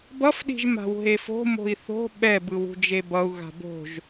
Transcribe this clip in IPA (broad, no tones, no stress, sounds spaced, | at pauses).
b ʌ f ɗ i̤ ʒ m a̤ w ɦ e f o̤ m o̤ i̯ θ o̤ ɓ ɛ b ɯ w ṳ d͡ʒ e b ʌ u̯ ɣ a̤ b o̤ ʒ